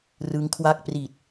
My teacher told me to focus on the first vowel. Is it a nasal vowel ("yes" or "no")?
no